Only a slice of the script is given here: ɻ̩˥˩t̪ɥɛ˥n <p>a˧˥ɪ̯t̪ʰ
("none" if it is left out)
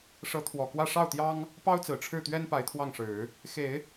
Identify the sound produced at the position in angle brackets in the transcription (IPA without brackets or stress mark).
p